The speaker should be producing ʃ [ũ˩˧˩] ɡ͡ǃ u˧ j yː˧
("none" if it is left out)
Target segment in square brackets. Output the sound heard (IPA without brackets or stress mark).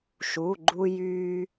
u˩˧˩